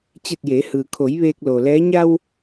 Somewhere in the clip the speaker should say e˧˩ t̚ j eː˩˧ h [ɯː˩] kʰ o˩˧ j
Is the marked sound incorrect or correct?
correct